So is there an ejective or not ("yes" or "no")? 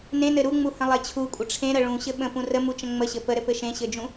yes